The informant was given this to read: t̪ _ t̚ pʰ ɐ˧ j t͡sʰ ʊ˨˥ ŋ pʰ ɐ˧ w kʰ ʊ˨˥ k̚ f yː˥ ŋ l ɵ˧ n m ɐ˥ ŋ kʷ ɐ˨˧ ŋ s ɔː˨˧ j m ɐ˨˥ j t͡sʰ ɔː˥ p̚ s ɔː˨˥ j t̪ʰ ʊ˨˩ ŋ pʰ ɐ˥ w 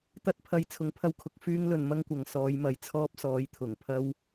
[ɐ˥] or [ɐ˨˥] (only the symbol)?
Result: ɐ˥